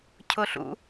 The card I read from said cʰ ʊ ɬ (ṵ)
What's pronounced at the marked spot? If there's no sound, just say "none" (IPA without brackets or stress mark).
ṵ